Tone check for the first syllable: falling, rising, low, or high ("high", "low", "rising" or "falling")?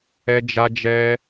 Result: high